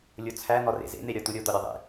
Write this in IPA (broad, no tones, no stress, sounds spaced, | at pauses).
lʲ o t͡sʰ æ n̪ ɒ r ḛ z ḛ n̪ e ɾʲ ɒ t̪ u ɾʲ o d̪ ɒ ɾʲ ɒ ðˤ ḛ